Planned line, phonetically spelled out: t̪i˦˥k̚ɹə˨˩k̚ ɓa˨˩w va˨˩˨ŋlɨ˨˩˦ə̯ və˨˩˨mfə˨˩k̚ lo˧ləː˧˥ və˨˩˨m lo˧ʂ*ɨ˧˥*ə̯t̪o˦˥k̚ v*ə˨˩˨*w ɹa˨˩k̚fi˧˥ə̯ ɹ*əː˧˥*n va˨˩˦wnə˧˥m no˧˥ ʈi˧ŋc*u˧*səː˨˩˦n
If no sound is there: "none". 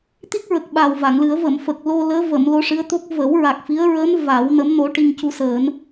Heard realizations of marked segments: ɨ˧˥, ə˨˩˦, əː˧˥, u˧

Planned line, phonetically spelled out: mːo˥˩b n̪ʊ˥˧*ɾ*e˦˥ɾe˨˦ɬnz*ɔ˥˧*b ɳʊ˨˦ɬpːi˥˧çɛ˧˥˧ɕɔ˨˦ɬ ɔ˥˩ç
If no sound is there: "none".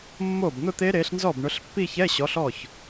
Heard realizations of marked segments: t̪, ɔ˥˩

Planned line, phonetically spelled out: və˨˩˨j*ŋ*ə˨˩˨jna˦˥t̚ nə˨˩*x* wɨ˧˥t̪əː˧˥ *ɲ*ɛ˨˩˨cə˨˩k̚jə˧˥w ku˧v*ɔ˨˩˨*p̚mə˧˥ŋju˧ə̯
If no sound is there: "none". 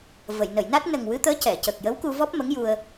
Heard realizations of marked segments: n, ŋ, c, ɔ˦˥

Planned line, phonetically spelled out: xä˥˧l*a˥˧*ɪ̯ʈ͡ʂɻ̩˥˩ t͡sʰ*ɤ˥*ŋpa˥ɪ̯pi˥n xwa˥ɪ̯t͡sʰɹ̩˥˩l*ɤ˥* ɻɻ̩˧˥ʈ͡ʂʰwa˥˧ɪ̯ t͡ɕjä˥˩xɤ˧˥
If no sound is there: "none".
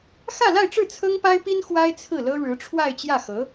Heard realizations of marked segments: a˥˧, ɤ˥, ɤ˥

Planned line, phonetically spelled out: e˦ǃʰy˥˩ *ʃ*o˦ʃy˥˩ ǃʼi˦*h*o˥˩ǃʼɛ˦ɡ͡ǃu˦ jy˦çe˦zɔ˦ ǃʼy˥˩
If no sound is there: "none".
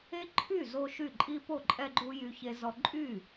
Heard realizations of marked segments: z, p

